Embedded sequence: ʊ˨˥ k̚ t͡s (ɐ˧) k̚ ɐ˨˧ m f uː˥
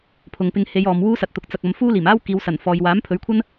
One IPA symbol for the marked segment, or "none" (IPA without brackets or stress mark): ɐ˨